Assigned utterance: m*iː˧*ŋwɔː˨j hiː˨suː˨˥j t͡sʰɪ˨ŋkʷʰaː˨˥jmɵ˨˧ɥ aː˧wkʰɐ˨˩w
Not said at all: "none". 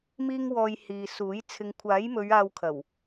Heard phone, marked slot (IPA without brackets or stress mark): iː˧